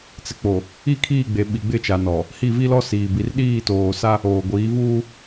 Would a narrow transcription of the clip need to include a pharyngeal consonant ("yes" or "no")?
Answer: no